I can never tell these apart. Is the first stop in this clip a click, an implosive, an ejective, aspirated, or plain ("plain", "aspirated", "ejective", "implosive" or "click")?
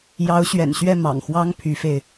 aspirated